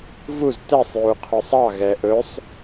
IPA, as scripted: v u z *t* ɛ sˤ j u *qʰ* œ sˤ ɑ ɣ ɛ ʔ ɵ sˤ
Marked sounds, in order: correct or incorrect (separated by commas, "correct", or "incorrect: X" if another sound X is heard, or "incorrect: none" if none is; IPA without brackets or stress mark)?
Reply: correct, correct